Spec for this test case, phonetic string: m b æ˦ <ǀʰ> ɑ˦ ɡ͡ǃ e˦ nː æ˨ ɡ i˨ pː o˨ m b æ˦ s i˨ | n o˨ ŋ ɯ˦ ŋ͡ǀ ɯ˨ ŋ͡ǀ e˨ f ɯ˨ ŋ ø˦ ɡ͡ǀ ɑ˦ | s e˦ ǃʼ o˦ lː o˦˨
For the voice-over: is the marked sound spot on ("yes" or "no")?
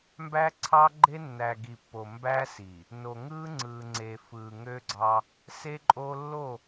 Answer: yes